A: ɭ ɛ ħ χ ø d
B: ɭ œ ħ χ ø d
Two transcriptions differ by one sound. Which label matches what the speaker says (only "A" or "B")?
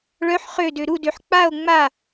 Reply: B